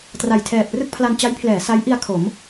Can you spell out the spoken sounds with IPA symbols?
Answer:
t r a˨˩ j tʰ ɛː˨˩ p̚ r ɯ˥˩ k̚ pʰ l a˧ n t͡ɕ a˦˥ j pʰ l ɛː˩˦ s a˦˥ j ʔ i˧ a̯ kʰ o˩˦ m

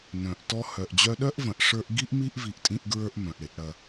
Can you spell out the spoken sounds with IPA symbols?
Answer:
n œ̃˨ ʔ t ɔ˧ h œ˨ ʔ d͡ʑ œ˧ ɗ œ˦ ʔ v ɐ̃˨ ʔ ʂ ə˞˧ ʔ ɡ i˦ ʔ m i˦ ʔ v i˧ ʔ tʼ ĩ˦ ʔ ɡ ɹ ə˞˦ ʔ m œ̃˨ ʔ ɽ ɪ˧ ʔ ɽ ɐ˧

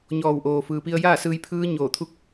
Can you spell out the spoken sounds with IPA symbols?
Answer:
ɲ ɔː˧˩ w ʔ oː˩ f ɯː˩ p i˧ ə̯ j aː˥˨ s ɯː˧ j pʰ ɯː˧˥ ɲ oː˧˩ t̪ʰ u˥˨ k̚

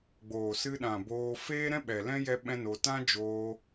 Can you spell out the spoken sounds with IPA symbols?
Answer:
ɡ͡b oː˨ s ɨ˧ ɗ ã˨ b oː˧ f eː˦ ɾ ɛ̃˦ ɓ ɛ˨ l ɛ̃˦ j ɛ˦ ɓ ɛ̃˦ n o˧ t ã˦ d͡ʒ oː˧

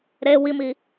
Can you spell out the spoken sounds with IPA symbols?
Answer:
ɾ e w i m i

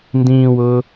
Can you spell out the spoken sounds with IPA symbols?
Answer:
n d ĩː w ʊː

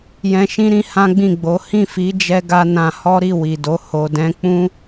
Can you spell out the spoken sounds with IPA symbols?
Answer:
j ɛ̃˧ ʃ ĩ˦ ɾ ĩ˧ h ã˦ ɡ͡b ĩ˦˨ ɡ͡b o˨˦ h ĩ˦˨ f i˨˦ d͡ʒ ɛ˧ ɡ a˧ n ã˧ h ɔ˦ ɾ i˦˨ w i˨ d o˨˦ h o˧ d ɛ̃˦ k͡p ũ˦

